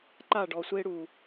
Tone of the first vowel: falling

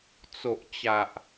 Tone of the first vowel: low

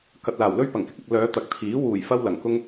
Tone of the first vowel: low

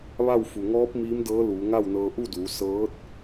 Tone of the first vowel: falling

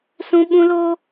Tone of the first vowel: high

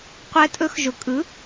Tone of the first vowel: rising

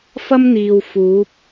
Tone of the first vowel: high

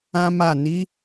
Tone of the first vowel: high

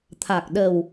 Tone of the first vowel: low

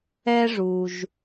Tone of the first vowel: high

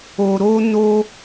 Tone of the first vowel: low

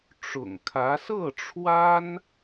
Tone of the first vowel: low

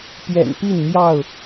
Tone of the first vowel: low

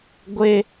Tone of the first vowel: high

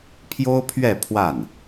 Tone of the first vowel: high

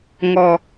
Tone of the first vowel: low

